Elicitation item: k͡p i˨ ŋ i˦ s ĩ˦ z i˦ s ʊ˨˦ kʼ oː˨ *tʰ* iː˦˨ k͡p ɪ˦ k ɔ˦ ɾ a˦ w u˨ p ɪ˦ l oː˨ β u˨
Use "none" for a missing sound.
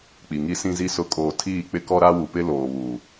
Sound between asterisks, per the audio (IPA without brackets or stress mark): tʰ